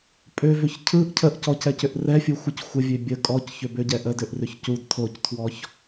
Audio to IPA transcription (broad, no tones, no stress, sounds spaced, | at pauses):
pʼ ø v ʏ ç cʰ ɯ ʔ cʰ ə ʔ c ɔ c ɛ c ʏ ʔ r ɛ fʲ ɯ xʷ ɨ c xʷ ə vʲ ø bʲ ə kʼ ɔ c ç ʏ b ø ɟ ɛ ʔ ə d ø ʔ r ʏ ç c u d tʰ o c tʰ w ɔ ç